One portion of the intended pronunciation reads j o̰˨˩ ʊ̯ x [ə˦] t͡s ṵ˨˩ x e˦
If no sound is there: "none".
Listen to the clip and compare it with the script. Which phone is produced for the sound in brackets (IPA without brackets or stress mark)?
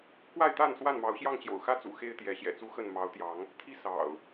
ä˦